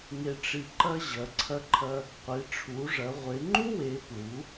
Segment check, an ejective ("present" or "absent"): absent